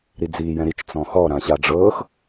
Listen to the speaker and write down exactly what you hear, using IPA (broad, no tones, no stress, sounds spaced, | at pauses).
ɾ i d͡z iː j ɛ̃ ɾ i t͡ʃ t͡s ɔ̃ x ɔ ɾ ã ɕ a ɖ͡ʐ ɤː x